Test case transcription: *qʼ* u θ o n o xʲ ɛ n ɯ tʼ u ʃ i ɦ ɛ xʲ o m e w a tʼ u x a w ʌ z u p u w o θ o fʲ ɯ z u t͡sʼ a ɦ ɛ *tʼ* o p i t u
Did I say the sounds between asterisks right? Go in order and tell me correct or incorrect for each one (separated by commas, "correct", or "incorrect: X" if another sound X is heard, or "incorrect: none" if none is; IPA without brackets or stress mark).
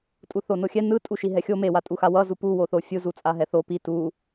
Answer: incorrect: tʼ, incorrect: θ